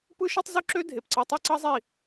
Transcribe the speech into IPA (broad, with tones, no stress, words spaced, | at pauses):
pɯ˦ʃe˦tˤ zu˦ǁø˦dʱe˨pǀɯ˧ tˤe˦ǀɑ˦zˤi˦˨